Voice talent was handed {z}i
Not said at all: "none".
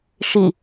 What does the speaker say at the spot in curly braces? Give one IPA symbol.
ʃ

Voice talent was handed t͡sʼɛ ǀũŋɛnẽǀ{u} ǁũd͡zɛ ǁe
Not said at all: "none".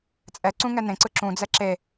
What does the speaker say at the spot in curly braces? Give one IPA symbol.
ɯ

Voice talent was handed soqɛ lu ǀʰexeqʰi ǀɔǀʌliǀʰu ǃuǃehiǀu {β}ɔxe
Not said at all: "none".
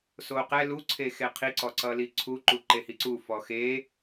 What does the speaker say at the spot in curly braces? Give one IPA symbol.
f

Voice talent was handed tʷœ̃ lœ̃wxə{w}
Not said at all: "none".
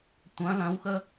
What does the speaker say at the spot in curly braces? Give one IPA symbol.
none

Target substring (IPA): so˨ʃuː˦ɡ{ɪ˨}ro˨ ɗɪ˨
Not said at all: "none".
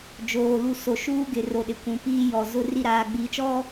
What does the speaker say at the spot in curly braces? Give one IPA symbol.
ɪ˨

